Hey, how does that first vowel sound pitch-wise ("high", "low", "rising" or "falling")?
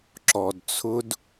low